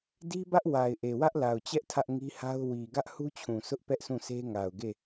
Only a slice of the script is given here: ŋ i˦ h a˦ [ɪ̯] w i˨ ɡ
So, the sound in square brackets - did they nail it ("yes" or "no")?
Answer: no